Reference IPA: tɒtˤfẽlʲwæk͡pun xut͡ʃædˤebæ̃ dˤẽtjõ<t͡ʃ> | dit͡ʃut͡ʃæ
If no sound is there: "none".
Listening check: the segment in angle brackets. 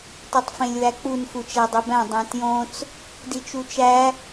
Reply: t͡s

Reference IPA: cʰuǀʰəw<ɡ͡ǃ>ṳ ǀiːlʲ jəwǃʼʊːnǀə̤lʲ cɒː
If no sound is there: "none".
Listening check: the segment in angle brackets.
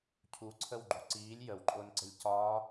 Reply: ɡ͡ǃ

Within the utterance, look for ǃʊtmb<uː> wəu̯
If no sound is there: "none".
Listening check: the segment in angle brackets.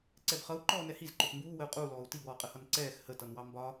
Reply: uː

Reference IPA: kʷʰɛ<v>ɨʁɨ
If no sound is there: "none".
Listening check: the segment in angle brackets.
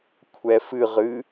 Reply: f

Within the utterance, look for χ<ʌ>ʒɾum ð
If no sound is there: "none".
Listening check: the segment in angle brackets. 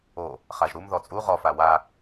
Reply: a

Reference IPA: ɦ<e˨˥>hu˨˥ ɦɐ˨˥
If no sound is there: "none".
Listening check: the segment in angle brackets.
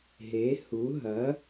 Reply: e˨˥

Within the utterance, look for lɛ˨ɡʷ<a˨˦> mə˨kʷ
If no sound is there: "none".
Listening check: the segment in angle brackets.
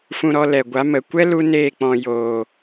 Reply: a˨˦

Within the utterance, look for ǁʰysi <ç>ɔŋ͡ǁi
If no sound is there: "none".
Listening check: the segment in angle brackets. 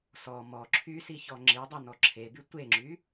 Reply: ç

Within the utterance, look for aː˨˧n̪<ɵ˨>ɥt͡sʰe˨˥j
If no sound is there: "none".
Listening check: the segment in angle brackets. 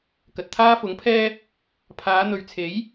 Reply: ɵ˨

